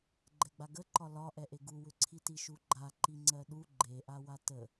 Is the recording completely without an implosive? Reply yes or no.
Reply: no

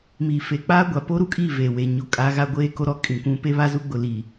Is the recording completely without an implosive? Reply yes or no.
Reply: yes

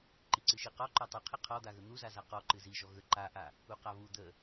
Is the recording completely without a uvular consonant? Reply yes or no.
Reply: no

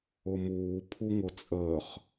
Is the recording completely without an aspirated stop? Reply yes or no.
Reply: no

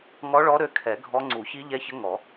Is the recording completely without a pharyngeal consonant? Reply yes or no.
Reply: yes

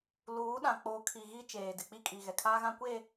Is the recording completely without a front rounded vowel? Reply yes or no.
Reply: yes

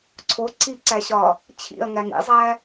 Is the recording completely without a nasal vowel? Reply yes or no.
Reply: yes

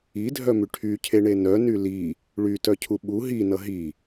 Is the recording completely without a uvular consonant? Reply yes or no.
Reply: yes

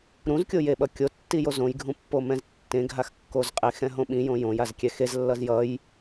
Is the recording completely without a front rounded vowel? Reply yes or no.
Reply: yes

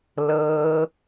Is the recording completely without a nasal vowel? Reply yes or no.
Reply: yes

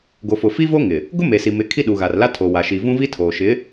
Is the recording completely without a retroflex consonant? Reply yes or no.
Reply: yes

